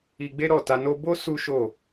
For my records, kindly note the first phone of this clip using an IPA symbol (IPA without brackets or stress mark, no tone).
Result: i